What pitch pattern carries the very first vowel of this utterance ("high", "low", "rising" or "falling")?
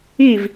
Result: falling